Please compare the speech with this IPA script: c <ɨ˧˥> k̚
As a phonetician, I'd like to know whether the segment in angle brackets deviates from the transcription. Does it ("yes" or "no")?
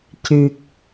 yes